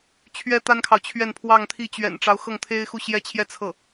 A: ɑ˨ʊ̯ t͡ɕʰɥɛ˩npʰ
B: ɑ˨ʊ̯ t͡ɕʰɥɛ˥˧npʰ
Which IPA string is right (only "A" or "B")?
B